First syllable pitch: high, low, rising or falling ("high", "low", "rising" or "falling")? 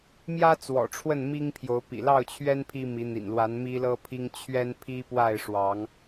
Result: high